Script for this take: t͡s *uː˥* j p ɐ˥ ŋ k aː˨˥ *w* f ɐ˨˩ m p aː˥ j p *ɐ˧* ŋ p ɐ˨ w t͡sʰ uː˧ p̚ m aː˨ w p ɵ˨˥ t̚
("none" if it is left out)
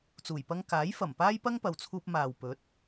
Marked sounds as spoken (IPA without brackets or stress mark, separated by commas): uː˨˩, j, ɐ˥